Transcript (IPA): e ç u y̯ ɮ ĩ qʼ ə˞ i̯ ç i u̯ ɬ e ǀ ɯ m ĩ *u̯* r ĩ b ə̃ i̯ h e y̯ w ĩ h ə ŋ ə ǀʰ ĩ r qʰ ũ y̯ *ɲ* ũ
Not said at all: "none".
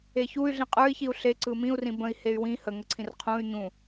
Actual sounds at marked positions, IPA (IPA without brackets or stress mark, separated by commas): u̯, ɲ